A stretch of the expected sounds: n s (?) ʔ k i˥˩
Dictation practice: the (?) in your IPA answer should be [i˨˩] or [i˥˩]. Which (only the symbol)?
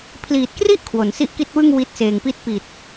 i˥˩